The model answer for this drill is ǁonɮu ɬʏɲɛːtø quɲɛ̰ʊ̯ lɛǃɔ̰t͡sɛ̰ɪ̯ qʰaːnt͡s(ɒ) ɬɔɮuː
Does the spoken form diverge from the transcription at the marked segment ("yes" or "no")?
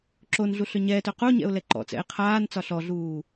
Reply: no